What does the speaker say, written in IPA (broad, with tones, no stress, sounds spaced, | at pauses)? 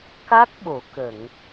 k a˦˥ k̚ ɓ o˨˩˦ k ə˨˩˨ ŋ